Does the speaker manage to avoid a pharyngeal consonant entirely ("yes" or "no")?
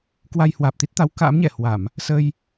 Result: yes